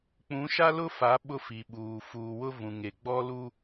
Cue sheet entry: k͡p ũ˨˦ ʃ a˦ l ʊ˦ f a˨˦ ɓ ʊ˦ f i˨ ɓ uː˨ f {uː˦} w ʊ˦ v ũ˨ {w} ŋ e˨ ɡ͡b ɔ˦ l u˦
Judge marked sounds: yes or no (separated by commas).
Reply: no, no